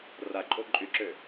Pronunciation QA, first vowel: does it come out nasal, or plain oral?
oral